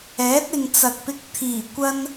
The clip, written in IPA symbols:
ɛː˨˥t̚ ɪ˨ŋt͡sɐ˨k̚pɪ˧k̚ t̪ʰiː˨˩ kʷɐ˧n

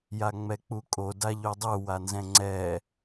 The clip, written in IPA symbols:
jaŋ͡mɛk͡pukʼo daʎodˤu wanzɛ̃ŋ͡ǀɛ

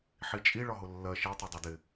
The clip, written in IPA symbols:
ħit͡ʃʼi ɭɒɦʊlːɜ ʃɛ tˤɛdˤɛdɪ

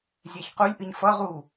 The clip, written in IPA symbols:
zʲɛçqulʲʔɨɲ fʌʁu

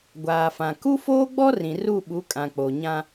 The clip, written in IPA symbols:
ɡʷaː˨fã˨ ku˦foː˦ɡ͡bɔ˦ rĩ˨ru˦˨ɓu˨˦kʼã˨ k͡po˨ɲã˦

